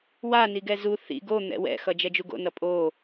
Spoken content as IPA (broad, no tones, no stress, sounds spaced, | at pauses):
w a n i ɡ ɛ z u θ ḭ ɡ o n̪ ɛ̰ w ɛ̰ x ʌ d͡ʒ ɛ d͡ʒ u ɡ o̰ n ʌ pʼ o